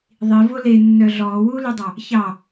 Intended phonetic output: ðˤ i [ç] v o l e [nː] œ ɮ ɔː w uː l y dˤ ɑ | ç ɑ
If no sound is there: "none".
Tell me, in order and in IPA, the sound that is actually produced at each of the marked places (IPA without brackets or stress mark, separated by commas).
none, nː